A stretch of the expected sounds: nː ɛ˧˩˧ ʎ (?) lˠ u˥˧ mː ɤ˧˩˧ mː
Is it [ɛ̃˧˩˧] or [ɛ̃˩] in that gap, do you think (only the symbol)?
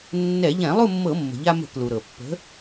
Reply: ɛ̃˧˩˧